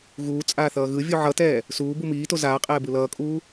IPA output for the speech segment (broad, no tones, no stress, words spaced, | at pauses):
ɣuː t͡sʼaːθʌːɣɯvʲu ʕʌtɛː | suː bumiːto zaːqʼɛː bɯlʌːkʼuː